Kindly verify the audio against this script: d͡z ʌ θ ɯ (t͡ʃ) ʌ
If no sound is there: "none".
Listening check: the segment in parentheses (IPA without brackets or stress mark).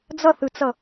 t͡s